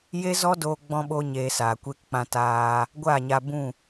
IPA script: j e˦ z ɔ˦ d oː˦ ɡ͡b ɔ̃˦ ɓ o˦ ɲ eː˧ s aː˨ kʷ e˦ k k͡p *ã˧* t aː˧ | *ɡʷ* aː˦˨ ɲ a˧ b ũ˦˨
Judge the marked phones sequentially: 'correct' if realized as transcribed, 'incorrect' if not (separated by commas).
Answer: correct, correct